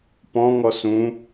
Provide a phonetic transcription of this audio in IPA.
pɔ̃ ŋɔsũ

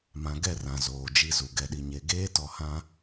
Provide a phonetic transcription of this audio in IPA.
mã˨ɡɛ˦˨rã˨ zoː˨d͡ʒi˦˨zu˨ ɡɛ˨ɗi˨ɲe˨ ɡeː˦tɔ˨hã˦

